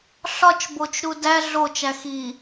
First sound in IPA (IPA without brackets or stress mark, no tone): ɬ